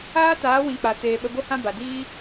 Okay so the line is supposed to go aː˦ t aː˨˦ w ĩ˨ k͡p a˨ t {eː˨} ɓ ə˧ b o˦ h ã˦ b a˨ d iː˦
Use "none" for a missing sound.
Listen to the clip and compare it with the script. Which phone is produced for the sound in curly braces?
eː˨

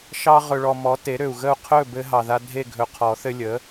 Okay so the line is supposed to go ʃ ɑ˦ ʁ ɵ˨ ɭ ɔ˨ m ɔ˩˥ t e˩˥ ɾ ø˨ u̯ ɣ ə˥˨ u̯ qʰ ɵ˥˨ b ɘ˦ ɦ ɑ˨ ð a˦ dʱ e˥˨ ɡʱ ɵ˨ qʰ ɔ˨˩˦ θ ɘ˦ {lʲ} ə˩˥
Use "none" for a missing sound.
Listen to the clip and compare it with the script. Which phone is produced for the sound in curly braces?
lʲ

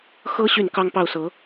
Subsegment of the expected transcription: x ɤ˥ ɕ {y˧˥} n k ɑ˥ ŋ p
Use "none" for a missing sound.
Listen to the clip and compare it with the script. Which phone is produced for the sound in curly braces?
y˥˩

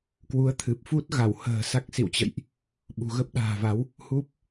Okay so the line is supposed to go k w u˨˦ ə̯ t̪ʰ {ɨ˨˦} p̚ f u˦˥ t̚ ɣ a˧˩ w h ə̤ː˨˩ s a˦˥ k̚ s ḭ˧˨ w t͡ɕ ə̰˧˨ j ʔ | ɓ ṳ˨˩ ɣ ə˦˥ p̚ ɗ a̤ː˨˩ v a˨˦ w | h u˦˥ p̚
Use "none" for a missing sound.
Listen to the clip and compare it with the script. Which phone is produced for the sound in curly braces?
ɨ˨˩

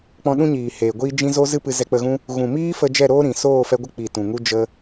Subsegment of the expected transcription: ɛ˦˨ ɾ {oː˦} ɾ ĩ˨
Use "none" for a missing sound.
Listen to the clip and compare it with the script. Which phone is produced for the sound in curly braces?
oː˦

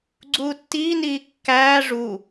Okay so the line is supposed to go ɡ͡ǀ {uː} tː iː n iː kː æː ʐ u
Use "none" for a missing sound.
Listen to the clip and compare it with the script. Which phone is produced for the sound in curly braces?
uː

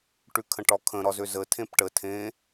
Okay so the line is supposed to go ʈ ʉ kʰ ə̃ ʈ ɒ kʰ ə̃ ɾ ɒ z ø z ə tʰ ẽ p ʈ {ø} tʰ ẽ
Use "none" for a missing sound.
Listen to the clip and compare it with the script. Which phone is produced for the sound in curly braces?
ə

